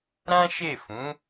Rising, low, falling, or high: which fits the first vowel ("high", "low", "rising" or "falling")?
high